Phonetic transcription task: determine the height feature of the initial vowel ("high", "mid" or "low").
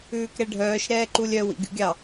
high